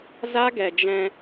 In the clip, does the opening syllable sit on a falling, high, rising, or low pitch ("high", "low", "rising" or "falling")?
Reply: high